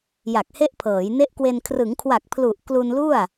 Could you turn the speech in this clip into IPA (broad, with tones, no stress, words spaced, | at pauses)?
ja˨˩k̚he˥˩ʔpʰɤː˩˦j ne˦˥ʔkwe˧n kʰrɯ˩˦ŋkʰwa˨˩k̚ pʰlu˨˩ʔ klu˧nlu˥˩a̯